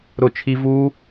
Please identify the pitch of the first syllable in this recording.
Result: falling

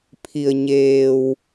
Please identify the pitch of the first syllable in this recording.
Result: low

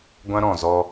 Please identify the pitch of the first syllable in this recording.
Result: high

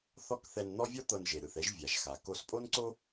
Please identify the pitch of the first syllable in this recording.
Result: high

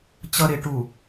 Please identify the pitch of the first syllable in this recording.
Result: low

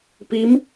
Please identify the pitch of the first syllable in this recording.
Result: rising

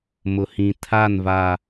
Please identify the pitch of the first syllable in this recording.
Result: low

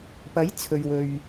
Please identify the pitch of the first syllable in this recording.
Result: rising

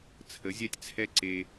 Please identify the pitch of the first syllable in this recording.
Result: rising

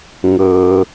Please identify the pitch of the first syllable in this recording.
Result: low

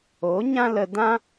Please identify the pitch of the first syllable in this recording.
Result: rising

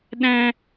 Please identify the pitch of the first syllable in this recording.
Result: high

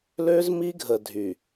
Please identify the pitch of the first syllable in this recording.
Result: high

